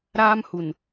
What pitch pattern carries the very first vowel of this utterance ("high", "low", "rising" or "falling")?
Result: high